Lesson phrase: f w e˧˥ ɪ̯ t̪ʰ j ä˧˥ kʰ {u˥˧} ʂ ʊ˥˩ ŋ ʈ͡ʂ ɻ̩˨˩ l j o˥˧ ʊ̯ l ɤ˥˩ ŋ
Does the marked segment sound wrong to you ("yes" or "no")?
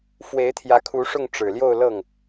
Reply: yes